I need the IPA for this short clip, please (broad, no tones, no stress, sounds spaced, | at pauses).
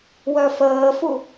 w œ f əː f u